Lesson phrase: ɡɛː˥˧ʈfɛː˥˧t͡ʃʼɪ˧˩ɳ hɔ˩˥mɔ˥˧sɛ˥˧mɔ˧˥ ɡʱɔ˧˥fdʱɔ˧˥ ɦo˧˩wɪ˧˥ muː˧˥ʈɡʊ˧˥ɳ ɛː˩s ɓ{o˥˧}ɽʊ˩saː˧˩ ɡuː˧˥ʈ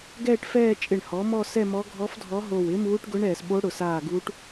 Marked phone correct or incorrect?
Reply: incorrect